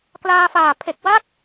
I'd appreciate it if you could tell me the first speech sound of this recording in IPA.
k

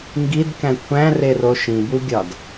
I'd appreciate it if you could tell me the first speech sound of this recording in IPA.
ŋ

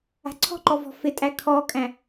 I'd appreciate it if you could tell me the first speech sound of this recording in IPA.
a̤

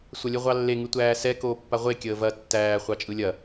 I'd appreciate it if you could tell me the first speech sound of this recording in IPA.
sʷ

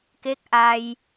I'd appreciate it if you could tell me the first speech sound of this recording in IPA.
k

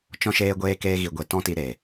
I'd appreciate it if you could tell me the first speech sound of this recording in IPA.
t͡ʃ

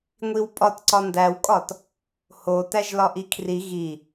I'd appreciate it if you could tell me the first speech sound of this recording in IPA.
ŋʷ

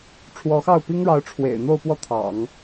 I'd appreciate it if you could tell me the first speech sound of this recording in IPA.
ʈ͡ʂʰ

